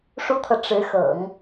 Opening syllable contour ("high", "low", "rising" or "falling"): high